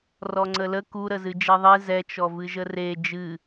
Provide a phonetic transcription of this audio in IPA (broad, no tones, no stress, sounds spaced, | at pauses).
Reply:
r ɔ ŋ͡ǀ ə l ə k u ɾ ə z ɨ d͡ʒ ɛ ðˤ e z ɛ t͡ʃ ɔ v ɨ ʒ ə r e d͡ʒ ɨ